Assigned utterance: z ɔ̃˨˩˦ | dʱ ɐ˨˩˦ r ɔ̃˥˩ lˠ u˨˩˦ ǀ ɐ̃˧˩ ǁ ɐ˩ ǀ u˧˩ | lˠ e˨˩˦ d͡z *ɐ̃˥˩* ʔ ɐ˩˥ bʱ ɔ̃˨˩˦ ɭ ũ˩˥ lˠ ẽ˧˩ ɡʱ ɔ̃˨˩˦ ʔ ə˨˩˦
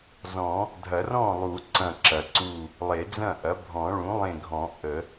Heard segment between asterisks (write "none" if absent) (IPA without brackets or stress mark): ɐ̃˥˩